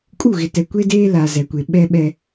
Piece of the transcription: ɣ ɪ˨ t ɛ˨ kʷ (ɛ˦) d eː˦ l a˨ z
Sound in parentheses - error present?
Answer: yes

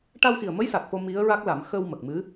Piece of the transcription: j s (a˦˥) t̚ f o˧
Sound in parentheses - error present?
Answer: yes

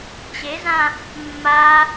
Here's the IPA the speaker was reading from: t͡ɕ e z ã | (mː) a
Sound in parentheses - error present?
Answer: no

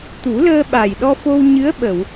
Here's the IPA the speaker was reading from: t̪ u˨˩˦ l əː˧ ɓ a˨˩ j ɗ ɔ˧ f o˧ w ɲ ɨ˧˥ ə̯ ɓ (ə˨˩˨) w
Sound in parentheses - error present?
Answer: no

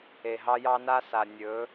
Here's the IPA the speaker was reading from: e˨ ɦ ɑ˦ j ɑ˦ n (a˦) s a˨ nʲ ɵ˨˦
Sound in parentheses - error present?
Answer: no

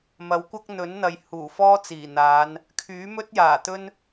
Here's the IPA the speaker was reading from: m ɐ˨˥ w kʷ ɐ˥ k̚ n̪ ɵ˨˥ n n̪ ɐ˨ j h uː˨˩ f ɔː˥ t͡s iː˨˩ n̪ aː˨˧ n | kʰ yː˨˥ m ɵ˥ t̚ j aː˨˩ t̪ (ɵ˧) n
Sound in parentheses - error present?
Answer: yes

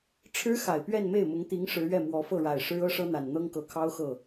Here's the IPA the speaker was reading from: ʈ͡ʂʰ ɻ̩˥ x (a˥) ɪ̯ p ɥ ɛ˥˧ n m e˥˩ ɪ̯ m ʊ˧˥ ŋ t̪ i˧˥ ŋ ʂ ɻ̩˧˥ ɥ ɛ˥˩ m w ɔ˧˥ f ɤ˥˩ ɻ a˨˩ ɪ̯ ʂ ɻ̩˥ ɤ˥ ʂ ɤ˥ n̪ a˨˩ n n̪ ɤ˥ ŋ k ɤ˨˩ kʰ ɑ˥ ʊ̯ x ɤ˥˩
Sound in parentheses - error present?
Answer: yes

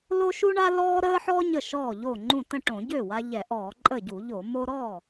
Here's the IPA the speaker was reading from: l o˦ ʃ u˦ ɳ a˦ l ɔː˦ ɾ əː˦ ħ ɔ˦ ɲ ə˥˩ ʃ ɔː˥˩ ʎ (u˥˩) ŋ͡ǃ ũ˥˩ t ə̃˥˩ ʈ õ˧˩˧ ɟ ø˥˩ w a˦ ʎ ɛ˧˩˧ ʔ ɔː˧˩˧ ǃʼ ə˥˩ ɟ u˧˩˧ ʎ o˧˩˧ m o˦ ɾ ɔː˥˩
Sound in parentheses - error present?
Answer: yes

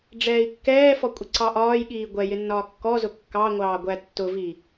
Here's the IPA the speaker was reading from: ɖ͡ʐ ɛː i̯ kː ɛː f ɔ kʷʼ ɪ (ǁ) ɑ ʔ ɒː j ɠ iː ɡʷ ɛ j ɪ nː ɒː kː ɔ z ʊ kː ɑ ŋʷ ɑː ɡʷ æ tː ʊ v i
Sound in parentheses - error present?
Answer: yes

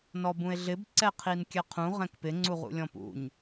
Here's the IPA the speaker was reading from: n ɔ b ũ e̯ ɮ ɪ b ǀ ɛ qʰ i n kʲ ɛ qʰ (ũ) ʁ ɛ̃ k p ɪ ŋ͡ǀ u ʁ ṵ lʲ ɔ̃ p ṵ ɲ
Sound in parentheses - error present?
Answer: no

